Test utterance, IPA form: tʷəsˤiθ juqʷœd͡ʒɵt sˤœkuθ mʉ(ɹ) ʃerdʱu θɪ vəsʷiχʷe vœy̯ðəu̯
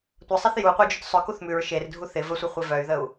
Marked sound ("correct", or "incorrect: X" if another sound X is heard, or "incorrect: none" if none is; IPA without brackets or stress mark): correct